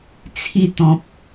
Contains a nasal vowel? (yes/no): yes